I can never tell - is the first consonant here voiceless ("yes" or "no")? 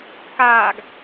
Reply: yes